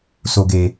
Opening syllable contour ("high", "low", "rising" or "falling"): low